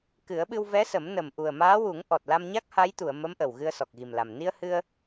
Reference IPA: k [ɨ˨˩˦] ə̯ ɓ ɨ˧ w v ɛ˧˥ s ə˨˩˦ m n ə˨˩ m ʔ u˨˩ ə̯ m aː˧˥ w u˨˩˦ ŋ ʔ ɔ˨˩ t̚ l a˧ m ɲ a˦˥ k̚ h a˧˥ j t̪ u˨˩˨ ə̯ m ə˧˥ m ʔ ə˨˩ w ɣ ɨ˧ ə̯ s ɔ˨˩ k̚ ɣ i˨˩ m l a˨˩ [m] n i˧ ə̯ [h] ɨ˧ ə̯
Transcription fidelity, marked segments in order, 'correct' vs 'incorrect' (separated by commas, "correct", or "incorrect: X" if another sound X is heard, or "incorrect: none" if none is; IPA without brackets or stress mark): correct, correct, correct